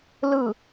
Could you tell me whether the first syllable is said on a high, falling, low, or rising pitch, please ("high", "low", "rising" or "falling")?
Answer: falling